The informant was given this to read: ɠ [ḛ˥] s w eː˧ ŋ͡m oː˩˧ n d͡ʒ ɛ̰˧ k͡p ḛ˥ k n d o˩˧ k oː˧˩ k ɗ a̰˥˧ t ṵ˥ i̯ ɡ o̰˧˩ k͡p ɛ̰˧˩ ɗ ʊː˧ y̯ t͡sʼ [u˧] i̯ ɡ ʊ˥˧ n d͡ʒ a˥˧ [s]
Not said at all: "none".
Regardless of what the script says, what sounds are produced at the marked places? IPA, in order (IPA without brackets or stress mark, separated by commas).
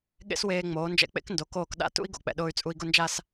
ḛ˥, u˧, s